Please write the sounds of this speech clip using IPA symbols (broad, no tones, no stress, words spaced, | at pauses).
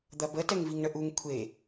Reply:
d̪ɐbə tɛŋviŋɳəʔuŋ kʷʰe